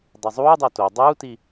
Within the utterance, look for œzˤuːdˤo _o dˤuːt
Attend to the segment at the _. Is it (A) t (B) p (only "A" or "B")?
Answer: A